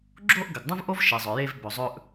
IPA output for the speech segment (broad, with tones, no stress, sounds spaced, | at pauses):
ɡ͡ǁ o˦ ʔ ɡ ɐ˨ ɡ dˤ ũ˦ v ʔ o˦ v ʃ i˨ zˤ ɵ˨ j e˦ v b ɵ˨ zˤ ɵ˦ ʔ